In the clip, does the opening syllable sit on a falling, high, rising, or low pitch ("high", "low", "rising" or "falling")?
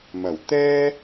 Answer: low